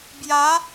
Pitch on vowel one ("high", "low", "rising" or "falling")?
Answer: rising